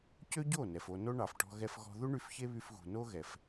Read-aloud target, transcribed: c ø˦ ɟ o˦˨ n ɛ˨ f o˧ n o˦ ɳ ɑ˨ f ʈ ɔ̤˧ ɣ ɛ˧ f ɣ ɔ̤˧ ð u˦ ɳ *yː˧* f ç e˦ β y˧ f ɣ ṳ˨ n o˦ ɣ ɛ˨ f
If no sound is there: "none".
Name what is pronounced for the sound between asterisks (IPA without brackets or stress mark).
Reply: y˧